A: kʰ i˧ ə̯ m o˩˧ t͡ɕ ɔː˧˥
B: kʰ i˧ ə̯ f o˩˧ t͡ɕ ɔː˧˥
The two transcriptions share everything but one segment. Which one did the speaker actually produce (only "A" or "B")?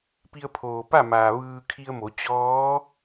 A